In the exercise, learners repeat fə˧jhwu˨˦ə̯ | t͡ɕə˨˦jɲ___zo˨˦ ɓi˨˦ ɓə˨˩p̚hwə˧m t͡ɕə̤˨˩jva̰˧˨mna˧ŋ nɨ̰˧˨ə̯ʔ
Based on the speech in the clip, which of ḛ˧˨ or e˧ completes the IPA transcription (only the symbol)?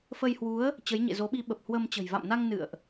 ḛ˧˨